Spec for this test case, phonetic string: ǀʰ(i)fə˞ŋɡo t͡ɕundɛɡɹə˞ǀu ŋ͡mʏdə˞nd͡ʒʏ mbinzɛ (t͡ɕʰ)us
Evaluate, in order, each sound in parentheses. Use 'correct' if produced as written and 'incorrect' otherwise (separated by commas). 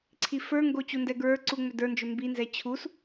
correct, correct